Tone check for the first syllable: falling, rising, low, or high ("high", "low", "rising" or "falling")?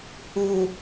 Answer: low